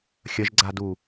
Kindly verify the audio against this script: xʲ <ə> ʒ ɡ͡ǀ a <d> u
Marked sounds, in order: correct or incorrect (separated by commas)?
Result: correct, correct